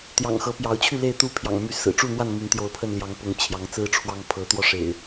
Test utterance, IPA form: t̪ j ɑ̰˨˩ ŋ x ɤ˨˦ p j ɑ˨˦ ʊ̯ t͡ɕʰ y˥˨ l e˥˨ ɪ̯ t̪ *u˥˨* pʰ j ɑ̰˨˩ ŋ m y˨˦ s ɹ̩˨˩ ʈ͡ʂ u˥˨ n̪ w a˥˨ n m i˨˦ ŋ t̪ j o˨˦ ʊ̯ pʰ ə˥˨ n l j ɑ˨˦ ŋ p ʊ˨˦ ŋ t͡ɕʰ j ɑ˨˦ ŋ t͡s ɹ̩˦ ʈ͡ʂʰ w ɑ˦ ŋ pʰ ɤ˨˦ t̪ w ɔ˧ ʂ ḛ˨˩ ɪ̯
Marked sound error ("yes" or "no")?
no